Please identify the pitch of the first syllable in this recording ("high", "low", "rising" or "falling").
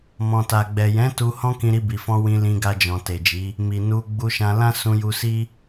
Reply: low